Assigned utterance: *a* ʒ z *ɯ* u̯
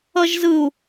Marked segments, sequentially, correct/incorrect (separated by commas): incorrect, correct